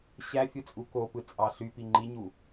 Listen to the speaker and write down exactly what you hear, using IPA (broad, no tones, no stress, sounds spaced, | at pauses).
ɕ æ fʲ ɯ t͡sʼ u k o p ɯ t͡sʼ ɑ ɬ y p i ŋ͡ǃ i ɲ u